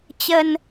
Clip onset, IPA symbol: t͡ɕ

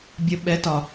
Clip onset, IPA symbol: bʲ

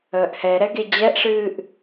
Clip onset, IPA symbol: əː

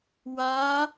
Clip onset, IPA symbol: w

